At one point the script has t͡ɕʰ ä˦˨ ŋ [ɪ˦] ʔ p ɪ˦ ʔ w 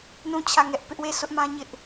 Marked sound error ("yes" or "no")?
yes